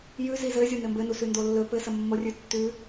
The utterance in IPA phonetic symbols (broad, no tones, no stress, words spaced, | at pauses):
jʉzi zɘ zʲonɘmbɘnu sʉndolːɵ pɘsəmːorʲʉ tːʉ